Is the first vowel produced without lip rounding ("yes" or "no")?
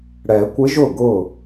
yes